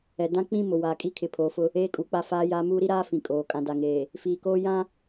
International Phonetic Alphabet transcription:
ɛ˨ d ã˦ k͡p ĩ˦ m ʊ˨ w aː˨ kʼ i˦ kʰ ɪ˨ pʰ oː˨ f ʊ˦ | eː˦ kʼ uː˨ k͡p a˦ f aː˦ j aː˦ m uː˦ ɾ i˦ ɾ aː˦ f ĩ˨ kʼ oː˨ kʼ ã˨ d a˨ ŋ eː˨ | f iː˨ k oː˦ j ã˦

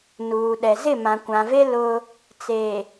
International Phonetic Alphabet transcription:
n uː˨ ɗ ɛ˨ z ɪ˦˨ m ã˨ kʷ ã˨ v e˦ l ʊ˦ | t͡s e˨

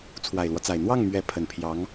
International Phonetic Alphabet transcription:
t͡sʰ w a˨˩ ɪ̯ l w ɔ˦ t͡s a˨˩ ɪ̯ n̪ w ɑ˥˩ ŋ m ɥ ɛ˧˥ pʰ ə˨˩ n pʰ j ɑ˧˥ ŋ

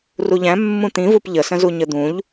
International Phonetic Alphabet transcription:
r u ʎ æ̃ mː ũ t̪ ĩ v u p ʎ ə s ə̃ z u ɲ ə d̪ ũ ʎ

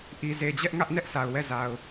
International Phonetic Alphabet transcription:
ʔ i˨ z e˨ d͡ʑ ɛ˦ ʔ ŋ ä˦ ʔ n ɛ˦ ʔ sʰ a˨ ʊ̯ w ɛ˦˨ z a˨ ʊ̯

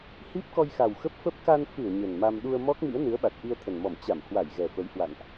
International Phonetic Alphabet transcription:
h i˦˥ p̚ k ɔ˧ j x a˨˩ w x ə˦˥ p̚ f ə˦˥ p̚ k a˧ n f ɨ˧˩ ə̯ ɲ ə˨˩ n m a˧ m ɗ u˧ ə̯ m ɔ˦˥ k̚ m ḭ˧˥ ə̯ n ɨ˨˦ ə̯ ɓ a˨˩ t̚ ʔ i˧ ə̯ t̪ʰ ə˨˩ n m ɔ˧˩ m t͡ɕ a˧˩ m h w a˧˩ j ɣ ɛ˨˩ f ə˨˦ j h w a̰˧˨ n ʔ

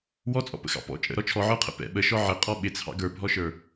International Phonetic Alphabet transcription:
w ɔ t͡sʼ ɔ̰ p ə̰ x ɑ̰ p ɔ̰ t͡ʃʼ ə̰ ɾ ɔ t͡ʃʰ ɔ ʕ ə˞ qʰ ə̰ p ɛ̰ ɓ ə ʃ ɔ ʕ ɪ qʼ ɔ ɓ ɪ t͡sʰ ɑ̰ ɡ ə˞ bʱ ɔ ʃ ə˞

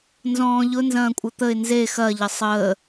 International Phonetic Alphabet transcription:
n z ɔ̃ː ʎ ʊ n z ɐ̃ː kʷʼ ə t̪ ə ɪ̯ n z e x ɐ ʎ ə sˤ əː

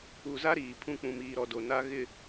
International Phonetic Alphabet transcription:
u˨ z a˦ ɾ iː˨ pʰ ũ˦ k͡p ũ˨ m iː˨ ɾ ɔ˨ d o˨ n a˦ ɣ ɪ˨

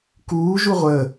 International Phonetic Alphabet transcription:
k uː ʒ u ʁʷ ə

